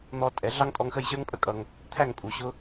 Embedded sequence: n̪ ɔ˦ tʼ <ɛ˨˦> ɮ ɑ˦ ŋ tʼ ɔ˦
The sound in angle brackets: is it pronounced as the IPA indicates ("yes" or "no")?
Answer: yes